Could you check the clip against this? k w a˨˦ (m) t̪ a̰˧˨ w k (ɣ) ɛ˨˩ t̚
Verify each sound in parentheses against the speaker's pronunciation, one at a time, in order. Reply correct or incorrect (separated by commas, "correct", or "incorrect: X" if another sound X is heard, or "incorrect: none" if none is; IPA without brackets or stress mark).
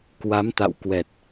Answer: correct, incorrect: w